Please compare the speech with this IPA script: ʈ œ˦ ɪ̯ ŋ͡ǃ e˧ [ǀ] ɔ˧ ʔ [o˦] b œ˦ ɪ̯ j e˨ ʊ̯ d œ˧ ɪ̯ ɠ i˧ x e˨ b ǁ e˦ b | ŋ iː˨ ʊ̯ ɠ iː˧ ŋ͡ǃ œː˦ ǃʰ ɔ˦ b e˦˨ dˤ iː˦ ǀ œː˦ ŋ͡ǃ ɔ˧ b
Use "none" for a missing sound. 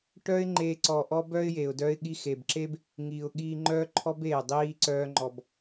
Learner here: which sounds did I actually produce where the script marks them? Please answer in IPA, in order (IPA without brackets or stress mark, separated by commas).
ǀ, ɔ˦